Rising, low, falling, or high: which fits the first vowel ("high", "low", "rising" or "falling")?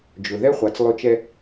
low